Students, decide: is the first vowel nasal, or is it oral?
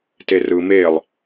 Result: oral